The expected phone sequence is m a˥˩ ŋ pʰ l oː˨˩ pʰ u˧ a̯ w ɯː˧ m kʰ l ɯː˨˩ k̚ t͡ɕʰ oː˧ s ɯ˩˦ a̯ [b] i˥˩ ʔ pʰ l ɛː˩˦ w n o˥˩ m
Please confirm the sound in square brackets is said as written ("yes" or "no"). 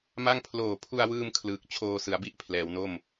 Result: yes